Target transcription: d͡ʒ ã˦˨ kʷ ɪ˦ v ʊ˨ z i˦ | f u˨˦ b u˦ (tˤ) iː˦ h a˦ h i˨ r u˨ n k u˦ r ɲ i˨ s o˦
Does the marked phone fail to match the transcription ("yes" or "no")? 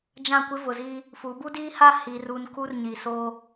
yes